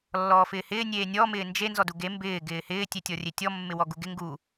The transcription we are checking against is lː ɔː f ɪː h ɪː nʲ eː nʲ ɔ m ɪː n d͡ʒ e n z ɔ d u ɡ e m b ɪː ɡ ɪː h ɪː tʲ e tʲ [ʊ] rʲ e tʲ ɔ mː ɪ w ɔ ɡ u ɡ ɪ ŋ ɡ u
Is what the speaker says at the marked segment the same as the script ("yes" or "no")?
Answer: no